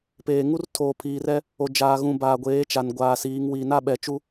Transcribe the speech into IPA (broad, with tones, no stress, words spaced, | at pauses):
peː˨ŋu˦rtʰoː˨ pʰiː˨rɛ˦ | o˨ d͡ʒaː˨ɣũ˨ baː˨ɡʷeː˨˦ t͡ʃa˨nɡʷaː˨siː˨˦ŋ wiː˨na˦ɓɛ˨t͡ʃu˦